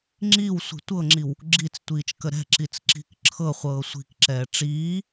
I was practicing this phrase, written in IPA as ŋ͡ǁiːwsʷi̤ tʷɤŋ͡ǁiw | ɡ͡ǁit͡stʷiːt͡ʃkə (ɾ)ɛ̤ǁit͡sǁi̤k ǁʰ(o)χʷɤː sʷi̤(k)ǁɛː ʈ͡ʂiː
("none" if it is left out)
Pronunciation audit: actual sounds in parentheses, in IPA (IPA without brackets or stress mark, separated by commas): ɾ, ɤ, k